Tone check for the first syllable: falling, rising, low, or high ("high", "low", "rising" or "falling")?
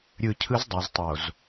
low